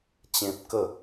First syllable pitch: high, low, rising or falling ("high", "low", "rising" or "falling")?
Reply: high